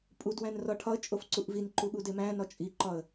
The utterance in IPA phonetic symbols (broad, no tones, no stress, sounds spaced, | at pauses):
pʼ u d w æ̃ n r ɒ ʈʰ ɒ ə̯ t͡ʃʼ o f ǀ u ʔ v i n ǃ u ɠ u d e m æ̃ n ɒ t͡ʃʼ i ǃ ɒ ə̯